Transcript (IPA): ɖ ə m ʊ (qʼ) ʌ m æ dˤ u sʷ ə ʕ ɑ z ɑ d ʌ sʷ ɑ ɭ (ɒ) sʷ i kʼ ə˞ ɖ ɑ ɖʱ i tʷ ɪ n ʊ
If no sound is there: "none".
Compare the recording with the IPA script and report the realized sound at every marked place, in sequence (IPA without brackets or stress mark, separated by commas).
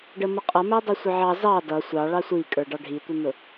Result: qʼ, ɑ